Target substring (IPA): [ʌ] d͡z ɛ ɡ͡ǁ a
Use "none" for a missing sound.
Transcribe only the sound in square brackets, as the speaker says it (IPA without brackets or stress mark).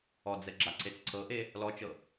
ɔ